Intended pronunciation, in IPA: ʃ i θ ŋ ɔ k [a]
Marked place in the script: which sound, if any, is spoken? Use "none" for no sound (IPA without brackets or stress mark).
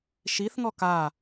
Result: a